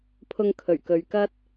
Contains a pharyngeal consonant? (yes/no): no